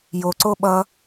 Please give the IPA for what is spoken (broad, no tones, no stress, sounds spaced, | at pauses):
j o ǀ o ɓ ʌ